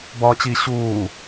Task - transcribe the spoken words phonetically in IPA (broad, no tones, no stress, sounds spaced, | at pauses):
b ɒː t͡ɕ i ɕ uː